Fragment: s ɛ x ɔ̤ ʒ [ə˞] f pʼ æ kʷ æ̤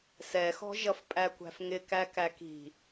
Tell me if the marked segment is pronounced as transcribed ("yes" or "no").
no